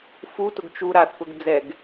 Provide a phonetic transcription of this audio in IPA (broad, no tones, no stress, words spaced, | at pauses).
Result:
futʊɡ t͡ʃu ɾaθkʊɡ d͡zɛɡ